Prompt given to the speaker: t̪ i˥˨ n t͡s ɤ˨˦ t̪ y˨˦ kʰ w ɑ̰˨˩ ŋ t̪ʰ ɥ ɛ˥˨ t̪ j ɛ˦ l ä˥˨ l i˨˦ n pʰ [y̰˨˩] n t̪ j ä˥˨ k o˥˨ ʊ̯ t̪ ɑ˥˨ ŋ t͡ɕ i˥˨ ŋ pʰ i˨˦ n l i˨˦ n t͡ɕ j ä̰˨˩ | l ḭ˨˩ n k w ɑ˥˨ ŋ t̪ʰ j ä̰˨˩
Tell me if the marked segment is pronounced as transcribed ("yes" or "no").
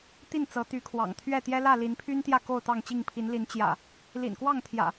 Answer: no